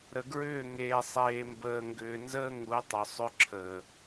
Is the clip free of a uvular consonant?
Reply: yes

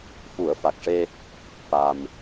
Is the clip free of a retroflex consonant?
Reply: no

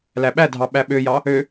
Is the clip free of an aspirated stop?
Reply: yes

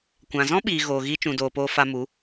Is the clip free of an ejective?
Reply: yes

